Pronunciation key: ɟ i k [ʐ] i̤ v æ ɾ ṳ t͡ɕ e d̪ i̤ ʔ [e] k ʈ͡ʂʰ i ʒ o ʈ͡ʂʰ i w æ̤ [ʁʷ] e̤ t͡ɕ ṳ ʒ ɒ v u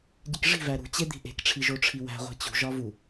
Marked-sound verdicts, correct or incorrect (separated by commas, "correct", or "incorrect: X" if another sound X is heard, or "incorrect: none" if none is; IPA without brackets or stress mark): correct, incorrect: e̤, correct